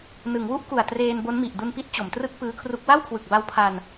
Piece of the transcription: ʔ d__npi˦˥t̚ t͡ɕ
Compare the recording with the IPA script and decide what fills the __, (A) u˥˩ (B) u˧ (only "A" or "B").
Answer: B